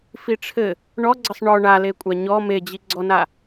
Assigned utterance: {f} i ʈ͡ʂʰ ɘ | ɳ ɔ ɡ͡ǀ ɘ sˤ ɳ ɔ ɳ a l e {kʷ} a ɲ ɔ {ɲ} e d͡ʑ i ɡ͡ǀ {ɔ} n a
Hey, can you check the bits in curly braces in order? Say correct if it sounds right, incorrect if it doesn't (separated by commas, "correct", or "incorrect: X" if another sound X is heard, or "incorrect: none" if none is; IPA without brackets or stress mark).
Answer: correct, incorrect: kʷʼ, incorrect: m, correct